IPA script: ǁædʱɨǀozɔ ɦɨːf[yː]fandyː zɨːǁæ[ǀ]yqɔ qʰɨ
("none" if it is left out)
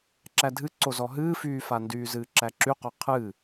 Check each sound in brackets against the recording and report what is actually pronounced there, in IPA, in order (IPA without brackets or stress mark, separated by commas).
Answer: yː, ǁ